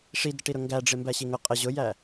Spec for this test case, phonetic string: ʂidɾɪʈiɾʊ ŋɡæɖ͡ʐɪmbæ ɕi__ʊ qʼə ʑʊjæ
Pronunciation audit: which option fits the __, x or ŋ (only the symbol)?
ŋ